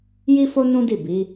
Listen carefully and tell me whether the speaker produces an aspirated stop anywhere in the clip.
no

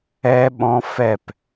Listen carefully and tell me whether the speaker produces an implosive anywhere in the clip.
yes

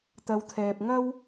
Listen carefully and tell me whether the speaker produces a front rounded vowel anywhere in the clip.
no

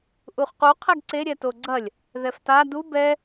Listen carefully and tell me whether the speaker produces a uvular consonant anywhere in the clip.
yes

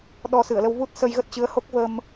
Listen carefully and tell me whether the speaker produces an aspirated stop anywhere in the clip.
no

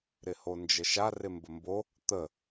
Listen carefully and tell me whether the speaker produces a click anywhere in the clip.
no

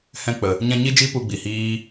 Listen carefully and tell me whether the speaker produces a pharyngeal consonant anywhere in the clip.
no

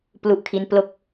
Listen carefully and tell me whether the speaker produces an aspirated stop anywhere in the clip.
yes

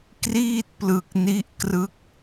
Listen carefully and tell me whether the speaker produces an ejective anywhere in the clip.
no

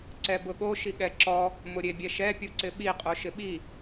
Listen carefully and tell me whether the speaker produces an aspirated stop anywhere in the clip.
no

